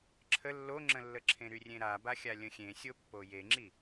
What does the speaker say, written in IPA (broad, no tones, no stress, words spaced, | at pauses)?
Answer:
ǁʰə lːoŋ͡ǁə̃lːəǁʰẽ ɾyrʲẽɾaba xʲalʲə̃xʲẽ sʲopːojeŋ͡ǁi